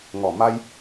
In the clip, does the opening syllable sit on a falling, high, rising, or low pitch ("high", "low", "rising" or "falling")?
low